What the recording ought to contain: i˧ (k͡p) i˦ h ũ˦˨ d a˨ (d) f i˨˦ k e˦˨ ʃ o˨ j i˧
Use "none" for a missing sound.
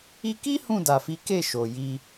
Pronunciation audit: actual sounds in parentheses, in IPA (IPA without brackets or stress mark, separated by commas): k, none